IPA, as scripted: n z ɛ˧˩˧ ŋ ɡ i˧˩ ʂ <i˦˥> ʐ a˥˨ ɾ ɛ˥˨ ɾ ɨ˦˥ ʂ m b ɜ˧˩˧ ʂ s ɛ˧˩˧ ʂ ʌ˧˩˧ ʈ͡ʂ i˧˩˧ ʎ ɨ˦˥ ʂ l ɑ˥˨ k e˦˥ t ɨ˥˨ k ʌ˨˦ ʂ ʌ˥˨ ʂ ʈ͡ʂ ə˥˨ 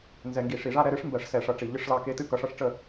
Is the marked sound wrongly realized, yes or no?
yes